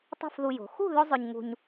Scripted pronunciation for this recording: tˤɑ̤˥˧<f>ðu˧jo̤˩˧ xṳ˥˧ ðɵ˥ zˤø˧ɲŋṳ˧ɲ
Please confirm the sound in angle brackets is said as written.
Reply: yes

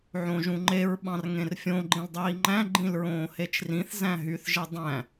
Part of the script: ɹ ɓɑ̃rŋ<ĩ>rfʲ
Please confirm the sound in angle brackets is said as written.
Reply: no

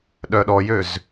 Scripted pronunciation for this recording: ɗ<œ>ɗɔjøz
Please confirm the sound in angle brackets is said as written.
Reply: yes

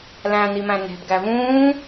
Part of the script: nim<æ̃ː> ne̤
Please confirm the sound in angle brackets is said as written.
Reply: no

